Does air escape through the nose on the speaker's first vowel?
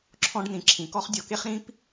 yes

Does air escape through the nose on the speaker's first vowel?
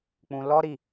yes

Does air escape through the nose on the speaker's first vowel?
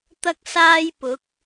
no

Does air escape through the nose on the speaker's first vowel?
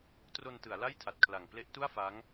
no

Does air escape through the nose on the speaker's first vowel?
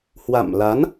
no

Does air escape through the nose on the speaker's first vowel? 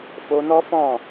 no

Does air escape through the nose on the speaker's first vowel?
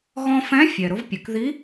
yes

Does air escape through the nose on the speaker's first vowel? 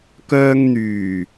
no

